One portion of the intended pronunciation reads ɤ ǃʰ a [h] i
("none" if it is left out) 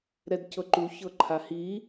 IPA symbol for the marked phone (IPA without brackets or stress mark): h